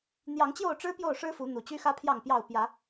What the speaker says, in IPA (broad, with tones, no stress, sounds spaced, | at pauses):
n̪ j ɑ˨˦ ŋ t͡ɕ j o˥˨ ʊ̯ ʈ͡ʂ ɻ̩˦ p j o˥˨ ʊ̯ ʂ ɻ̩˦ f u˨˦ n̪ u˨˩ t͡ɕ y˦ x ä˦ pʰ j ɑ˥˨ ŋ p j ɑ˥˨ ʊ̯ p j ä˨˦